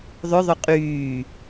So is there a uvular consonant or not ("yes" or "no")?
yes